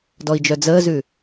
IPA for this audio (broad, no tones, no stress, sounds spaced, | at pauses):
d ɔ i̯ d͡ʒ œ d͡z əː z ʉ